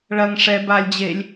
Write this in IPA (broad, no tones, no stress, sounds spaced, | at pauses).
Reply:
ɭ ɐ ŋ ʂ ɛ b a lʲ d͡ʑ e lʲ